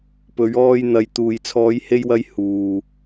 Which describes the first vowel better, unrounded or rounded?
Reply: rounded